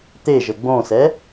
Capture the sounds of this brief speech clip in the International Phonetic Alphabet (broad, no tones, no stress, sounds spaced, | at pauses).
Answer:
t̪ e ʒ ə ɡ͡b õ s ɛ